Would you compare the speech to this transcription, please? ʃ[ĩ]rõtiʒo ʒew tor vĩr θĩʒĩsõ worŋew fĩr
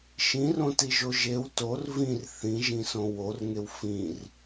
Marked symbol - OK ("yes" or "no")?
yes